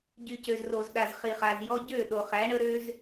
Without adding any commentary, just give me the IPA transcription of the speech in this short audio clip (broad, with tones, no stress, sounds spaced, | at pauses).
ɟ y˨ c ø˨ z r o˨ z ɗ a˨ z χ i˨ χ a˨ z j ɔ˧ ɟ ø˦˨ ɗ o˨ χ æ˨˦ ɳ ə˦ ɾ ø˦ z